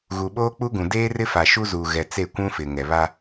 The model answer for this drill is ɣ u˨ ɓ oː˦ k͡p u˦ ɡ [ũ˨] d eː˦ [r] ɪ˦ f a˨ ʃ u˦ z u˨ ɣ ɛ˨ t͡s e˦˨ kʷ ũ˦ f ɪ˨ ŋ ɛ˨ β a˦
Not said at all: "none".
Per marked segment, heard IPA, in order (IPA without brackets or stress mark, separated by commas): ũ˨, r